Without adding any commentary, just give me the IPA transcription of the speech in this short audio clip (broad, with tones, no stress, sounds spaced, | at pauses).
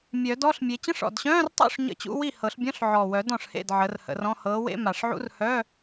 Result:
mʲ œ˨˩˦ d ɔ˧˥˧ ɬ mʲ e˨˦ t͡ɕ ə̃˧˥˧ ʂ ɔ̰˨˩ d ɕ œ̃ː˧˥˧ r tˤ ṵ˥˩ ʂ ɲ ə̰˧˥˧ t͡ɕ ṵ˧˥˧ w i˥˩ h ɤ˨˩˦ ɬ bʲ ɔ̃˧˥˧ ɬ ʕ ɔː˨˩ w œ˨˩˦ d ɔ̃˨˩ ʂ h ḛ˥˩ d ʕ ə˨˦ r h ə̰˨˦ r ɔ̃˧˥˧ h ɤː˨˦ w ḛ˧˥˧ m a˨˩ ʂ ʕ ṵ˧˥˧ r h œ˧˥˧